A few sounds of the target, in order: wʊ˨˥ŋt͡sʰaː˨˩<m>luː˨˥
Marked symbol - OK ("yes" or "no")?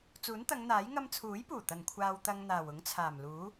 yes